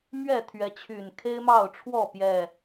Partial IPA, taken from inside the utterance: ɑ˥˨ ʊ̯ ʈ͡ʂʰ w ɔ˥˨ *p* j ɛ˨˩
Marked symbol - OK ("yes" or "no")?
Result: yes